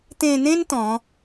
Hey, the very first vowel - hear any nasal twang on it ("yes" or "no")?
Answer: yes